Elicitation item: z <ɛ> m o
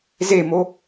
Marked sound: incorrect: e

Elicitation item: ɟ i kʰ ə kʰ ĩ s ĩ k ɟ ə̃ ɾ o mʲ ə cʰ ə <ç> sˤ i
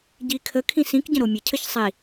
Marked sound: correct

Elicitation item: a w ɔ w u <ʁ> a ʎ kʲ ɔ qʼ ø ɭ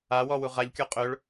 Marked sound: correct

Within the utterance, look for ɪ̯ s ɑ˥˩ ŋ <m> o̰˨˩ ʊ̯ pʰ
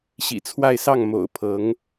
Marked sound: correct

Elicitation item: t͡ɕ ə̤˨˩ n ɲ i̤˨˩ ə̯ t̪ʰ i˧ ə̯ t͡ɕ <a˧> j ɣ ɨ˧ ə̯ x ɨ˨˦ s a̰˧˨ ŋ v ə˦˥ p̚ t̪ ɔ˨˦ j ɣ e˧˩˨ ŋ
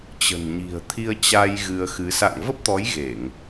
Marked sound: correct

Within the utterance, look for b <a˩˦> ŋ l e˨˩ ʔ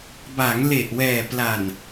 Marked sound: correct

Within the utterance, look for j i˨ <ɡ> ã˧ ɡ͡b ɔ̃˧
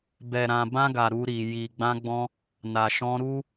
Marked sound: incorrect: ɡ͡b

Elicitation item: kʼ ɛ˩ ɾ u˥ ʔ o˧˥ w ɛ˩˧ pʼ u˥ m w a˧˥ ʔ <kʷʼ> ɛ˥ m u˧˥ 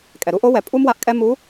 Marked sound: incorrect: kʼ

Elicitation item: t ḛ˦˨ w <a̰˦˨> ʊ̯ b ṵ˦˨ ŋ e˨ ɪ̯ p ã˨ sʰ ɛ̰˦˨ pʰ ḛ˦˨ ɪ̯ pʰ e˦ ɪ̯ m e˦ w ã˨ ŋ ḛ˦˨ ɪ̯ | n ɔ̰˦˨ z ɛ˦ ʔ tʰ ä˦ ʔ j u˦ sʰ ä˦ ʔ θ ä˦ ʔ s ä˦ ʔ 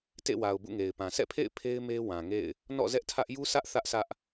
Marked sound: incorrect: a˨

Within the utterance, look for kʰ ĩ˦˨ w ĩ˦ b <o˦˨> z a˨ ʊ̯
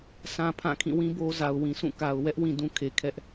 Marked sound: incorrect: o˦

